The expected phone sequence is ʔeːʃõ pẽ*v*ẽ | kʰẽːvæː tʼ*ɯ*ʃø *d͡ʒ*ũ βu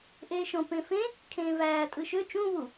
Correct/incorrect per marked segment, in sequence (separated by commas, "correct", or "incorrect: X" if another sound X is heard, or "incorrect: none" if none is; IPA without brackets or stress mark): incorrect: f, correct, incorrect: t͡ʃ